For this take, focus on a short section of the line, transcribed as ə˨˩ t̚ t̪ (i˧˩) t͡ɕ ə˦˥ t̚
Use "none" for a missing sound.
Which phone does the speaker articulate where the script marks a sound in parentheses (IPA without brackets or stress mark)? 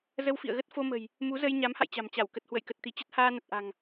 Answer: i˧˩